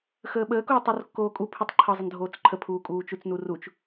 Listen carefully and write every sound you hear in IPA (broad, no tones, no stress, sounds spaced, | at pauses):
x əː ɓ əː k oː tˤ o r kː oː kʼ u pʰ u tˤ ǃʰ ʌ zˤ ə n dʱ oː t͡s ǃʰ ə pʰ uː kʼ uː t͡ʃ u t͡s n u r u t͡ʃ